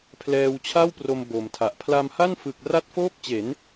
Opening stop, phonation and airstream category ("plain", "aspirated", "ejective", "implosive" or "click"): aspirated